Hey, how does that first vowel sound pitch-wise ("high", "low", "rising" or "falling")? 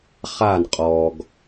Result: falling